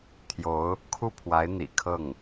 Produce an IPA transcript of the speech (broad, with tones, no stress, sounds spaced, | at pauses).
t̪ʰ j o˧˥ ʊ̯ | kʰ u˥˩ pʰ w a˧˥ ɪ̯ n̪ ḭ˨˩ kʰ ɤ˥˩ ŋ